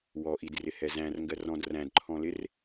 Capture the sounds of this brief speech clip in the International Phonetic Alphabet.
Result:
w ɔ ʔ i d r ɪ h ɛ z æ̃ r ŋ ɡ ɜ r ɔ̃ d r æ̃ d ǃʰ ɔ̃ l ɪ r

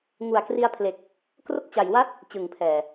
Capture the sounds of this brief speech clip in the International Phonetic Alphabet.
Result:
ŋ u˨˩ a̯ k r i˧ a̯ pʰ l e˨˩ k̚ | k r o˥˩ k̚ t͡ɕ a˨˩ j w a˥˩ t̚ | t͡ɕ ɯ˨˩ ŋ pʰ ɛː˨˩

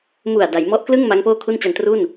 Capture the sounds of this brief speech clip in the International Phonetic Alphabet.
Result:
m u˨˩ a̯ d a˩˦ j m ɔ˦˥ ʔ k l ɯ˥˩ ŋ m a˦˥ ŋ p oː˥˩ kʰ u˥˩ n t͡ɕ a˧ n t r u˥˩ n

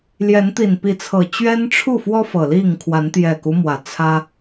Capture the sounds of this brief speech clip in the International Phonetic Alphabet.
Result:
l j ɛ˨˦ n t̪ i˨˩ n p i˨˦ t͡sʰ ɤ˨˩ t͡ɕ ɥ ɛ˦ n ʈ͡ʂʰ u˥˨ f w ɔ˦ f ɤ˨˩ l i˥˨ ŋ kʰ w a˨˦ n t̪ j ɛ˨˩ k u˦ m w ä˨˩ t͡sʰ ä˦

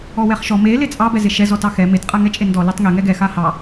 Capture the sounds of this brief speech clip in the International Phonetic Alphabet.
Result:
ɔ w ɛ χ ʃ ɔ m e l e t͡sʼ ɑ b ɛ z e ʃ ɛ z ɔ t ɑ x ɛ m e t qʼ a ŋ ɛ t͡ʃʼ e n d ɔ l ɛ tˤ ŋ e ŋ ɛ ɡ ɛ x a h ɑ

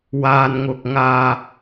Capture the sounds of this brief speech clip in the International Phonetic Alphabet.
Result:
w aː˨ n ŋ ʊ˨ k̚ ŋ aː˧

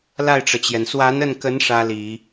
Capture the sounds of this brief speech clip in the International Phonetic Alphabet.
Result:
l a˥˩ ɪ̯ ʈ͡ʂ ɤ˩ t͡ɕ j ɛ˩ n s w a˧˥ n ə˥˩ n k ə˧˥ n ʂ ä˥ l i˨˩˦

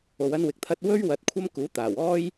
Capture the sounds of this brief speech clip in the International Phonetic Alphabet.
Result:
o˨˧ w ɐ˥ n w ɪ˨˥ k̚ t̪ʰ ɐ˥ t̚ w ɵ˥ ɥ w ɐ˧ t̚ kʷʰ ɐ˥ m k uː˨˥ t̪ aː˨˩ w ɔː˥ j

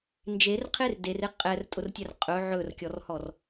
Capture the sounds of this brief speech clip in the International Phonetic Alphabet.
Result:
n d͡ʒ e r qʰ e r d e r e qʼ ɛ r tʼ ʊ r tʲ ɛ r qʼ ɵ ʕ ɵ r kʲ ɔ r h ɔ r

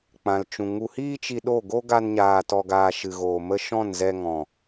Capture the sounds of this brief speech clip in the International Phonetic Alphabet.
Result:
k͡p ã˨ l t͡ʃ ũ˨ ŋ u˨ h iː˧ t͡ʃ i˧ ɗ o˦˨ ɡ o˦ ɡ a˧ n ɲ aː˨ t ɔ˨ ɡ aː˨ ʃ ɨ˨ ɣ oː˨ m ə˧ ʃ ɔ̃˦˨ n z ɛ˧ ŋ ɔ̃˨

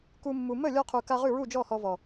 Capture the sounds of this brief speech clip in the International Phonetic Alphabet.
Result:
k u˧ mː u˨ m ə˦˨ lʲ ɔ˧ qʰ u˨ k a˧ ʁ ʉ˦˨ ɹ u˦˨ d͡ʒ ɔ˦˨ h ɔ˧ v ɔ˨

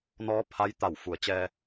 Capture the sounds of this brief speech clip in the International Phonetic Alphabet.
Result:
n ɔː˧˥ pʰ a˧˥ j t̪ a˧˩ w f u˩˧ ə̯ t͡ɕ ɛː˧

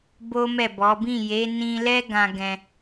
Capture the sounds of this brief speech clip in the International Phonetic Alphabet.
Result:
b o˦ m ɛ˦˨ b ɔ˨˦ b ĩ˦˨ j e˨˦ n ĩ˧ l ɛ˦ ɡ ã˧ ɡ ɛ̃˧

